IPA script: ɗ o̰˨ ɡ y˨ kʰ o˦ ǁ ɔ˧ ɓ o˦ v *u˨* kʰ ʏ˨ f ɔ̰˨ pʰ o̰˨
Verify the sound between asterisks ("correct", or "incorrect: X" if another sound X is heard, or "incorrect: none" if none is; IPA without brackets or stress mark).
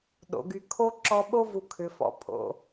correct